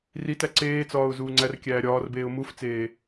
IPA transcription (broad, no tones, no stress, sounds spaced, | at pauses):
r i t æ ǀ eː t͡s ɒː ʊ̯ z uː ŋ͡ǀ æ r kʲ æː ɾʲ ɒː r b eː ʊ̯ m u f t͡s eː